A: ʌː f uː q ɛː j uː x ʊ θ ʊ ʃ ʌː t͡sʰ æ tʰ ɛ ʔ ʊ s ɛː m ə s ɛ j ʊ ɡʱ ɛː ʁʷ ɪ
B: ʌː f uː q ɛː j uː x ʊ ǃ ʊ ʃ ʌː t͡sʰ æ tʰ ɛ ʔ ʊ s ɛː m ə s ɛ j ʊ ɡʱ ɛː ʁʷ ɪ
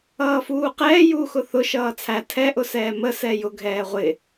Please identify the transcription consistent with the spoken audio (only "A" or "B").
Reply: A